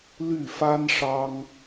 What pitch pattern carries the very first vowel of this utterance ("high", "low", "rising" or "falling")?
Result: falling